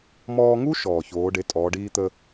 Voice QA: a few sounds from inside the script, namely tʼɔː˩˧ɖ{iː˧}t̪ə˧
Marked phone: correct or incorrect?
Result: correct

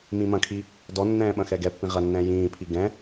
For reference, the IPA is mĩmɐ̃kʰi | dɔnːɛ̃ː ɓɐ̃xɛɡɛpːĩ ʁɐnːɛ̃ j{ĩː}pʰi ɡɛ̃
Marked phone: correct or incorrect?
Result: correct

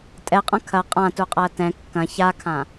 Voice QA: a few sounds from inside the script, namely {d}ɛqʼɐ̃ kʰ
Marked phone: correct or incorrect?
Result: incorrect: tʼ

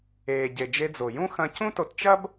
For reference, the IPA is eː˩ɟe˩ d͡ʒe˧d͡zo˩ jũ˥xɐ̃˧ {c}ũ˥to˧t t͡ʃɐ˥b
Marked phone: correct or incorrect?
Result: correct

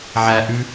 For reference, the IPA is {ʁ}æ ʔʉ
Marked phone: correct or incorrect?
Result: incorrect: ʕ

